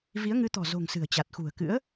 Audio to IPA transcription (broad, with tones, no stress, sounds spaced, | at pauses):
v i˨˦ ə̯ ŋ ɨ˨˦ t̪ ɔ̤˨˩ z o̤˨˩ ŋ s ɨ̤˨˩ ə̯ t͡ɕ a˨˩ t̚ x ṳ˨˩ ə̯ k ɨ̰˧˥ ə̯